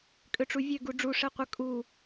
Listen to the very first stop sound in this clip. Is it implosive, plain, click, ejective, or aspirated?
ejective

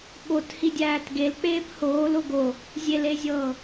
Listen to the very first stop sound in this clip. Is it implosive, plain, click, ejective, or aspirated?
implosive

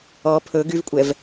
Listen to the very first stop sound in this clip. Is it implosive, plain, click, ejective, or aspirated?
aspirated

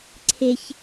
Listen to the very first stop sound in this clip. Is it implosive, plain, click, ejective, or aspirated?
click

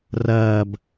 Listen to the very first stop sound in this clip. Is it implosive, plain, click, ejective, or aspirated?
plain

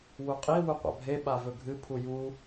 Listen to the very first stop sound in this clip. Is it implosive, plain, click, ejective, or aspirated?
ejective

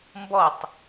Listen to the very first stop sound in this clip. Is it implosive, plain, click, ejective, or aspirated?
plain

